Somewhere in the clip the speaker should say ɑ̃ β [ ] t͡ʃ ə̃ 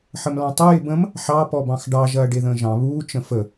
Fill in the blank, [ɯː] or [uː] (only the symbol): uː